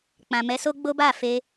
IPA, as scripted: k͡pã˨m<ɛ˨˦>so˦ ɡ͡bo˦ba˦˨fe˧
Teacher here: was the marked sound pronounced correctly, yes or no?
yes